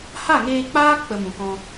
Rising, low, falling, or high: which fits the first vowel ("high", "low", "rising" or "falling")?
falling